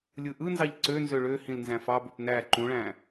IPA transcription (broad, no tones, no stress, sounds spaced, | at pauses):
lʲ ɯ ʔ ɯ n z ɑ ʎ ǀ ø n z ø ɭ ø h ĩ l n z æ̃ f ɑ b ø p n æ ǃ ũ ɭ æ̃